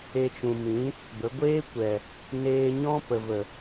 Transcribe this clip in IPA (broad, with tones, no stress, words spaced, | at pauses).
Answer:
e˧t͡ʃũ˨mĩ˨˦ | bə˨˦ ɡʷeː˦kʷɛ˨ | neː˧ɲɔ̃˦pə˨və˨